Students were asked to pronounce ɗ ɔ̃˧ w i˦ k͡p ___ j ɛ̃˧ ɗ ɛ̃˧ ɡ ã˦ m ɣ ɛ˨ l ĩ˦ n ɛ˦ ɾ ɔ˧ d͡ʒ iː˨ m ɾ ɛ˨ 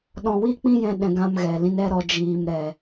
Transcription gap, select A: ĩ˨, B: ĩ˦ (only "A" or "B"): B